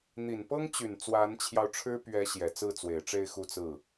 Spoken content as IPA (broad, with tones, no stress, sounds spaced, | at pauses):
n̪ i˨˩ n p ɤ˥ ŋ t͡ɕ y˨˩ n t͡s w a˧˥ n t͡ɕʰ j ɑ˧ ʊ̯ ʈ͡ʂʰ ɻ̩˥ p ɥ ɛ˧˥ ɕ j ɛ˨˩ t͡s ɹ̩˥˩ t͡s w e˨˩ ɪ̯ ʈ͡ʂ e˥˧ ɪ̯ x u˥˧ t͡s ɹ̩˥˩